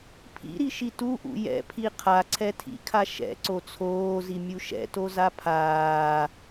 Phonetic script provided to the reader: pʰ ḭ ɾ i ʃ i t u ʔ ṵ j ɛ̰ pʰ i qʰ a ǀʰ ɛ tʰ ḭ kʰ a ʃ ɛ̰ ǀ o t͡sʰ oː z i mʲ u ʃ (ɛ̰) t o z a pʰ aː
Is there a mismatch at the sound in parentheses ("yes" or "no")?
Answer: no